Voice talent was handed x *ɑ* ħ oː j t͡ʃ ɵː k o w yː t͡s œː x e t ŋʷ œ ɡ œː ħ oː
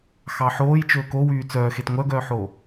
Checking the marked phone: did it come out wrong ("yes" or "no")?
no